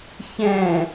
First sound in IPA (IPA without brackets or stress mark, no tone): ç